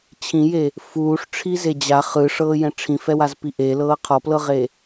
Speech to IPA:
t͡ɕʰ ĩ j e | f uː ʂ ʈ͡ʂʰ i z e d͡ʑ a χ ɯ ʂ ɤː j ɛ̃ ʈ͡ʂʰ ĩ f ɛ w a z p i ʔ e l ɤː qʰ ɔ p l ɤ ʁ e

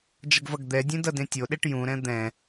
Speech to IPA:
d͡ʒ ʌ ɡ v ʌ ɡ d̪ ɛ dʲ ẽ d ʌ d ẽ tʲ o ɗ e ʈ j ũ ɾ ɛ̃ d̪ ɛ̃

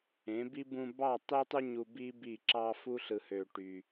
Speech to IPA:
ẽ˨˦ b i˦ b ũ˧ b ɑ˦˨ tˤ e˦ tˤ u˦ ɲ u˧ b i˦ b i˦˨ ǁ ɑ˦ f u˦ ɬ ɯ˧ h ø˧ ʈ y˧

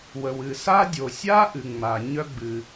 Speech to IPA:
w ə˩ w ɨ˩ s a˥ dʲ o˩ sʲ a˥ ʔ ɨ˩ ŋ͡m a˩ ɲ œ˥ ɡ͡b ɨ˩

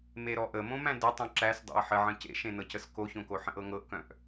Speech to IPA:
m e ɾ ɔ ʔ ə m õ m æ̃ d ə tˤ õ ǁ æ s dˤ ḛ ɐ̯ ħ ə ʕ ə̃ c ḛ ʃ ẽ n ɤ c ə s k o ç õ k o ħ ə̃ ʔ ɤ ŋ ɤ ʔ k œ̃ ʔ

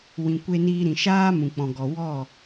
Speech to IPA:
w ĩ˨ kʷ e˧ n iː˧ ɾ ĩ˨ ʃ aː˦ m ũ˨ k͡p ɔ̃˨ ɡ ɔ˨ w ɔ˦˨

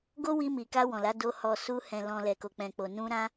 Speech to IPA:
ɡ o˦ w i˧ m i˨ k a˧ w ɔ̃˨ l a˨˦ d o˧ h ɔ˨ s u˧ h ɛ̃˨ l ɔ̃˨ l ɛ˨ k o˨ k͡p ɛ̃˨ k͡p o˨ n ũ˧ ɾ ã˧

